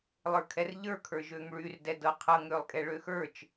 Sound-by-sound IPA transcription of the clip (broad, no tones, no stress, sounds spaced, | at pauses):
lˠ ə˞ kʰ ɛ r ʎ ə˞ kʰ ə˞ ʒ ø ŋ ɭ y r d ɛ d ɤ qʰ ɤ ŋ ɾ ø lˠ kʼ ɛ ɭ ø x ə˞ t͡ʃ